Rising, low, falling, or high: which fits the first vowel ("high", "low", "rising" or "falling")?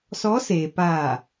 rising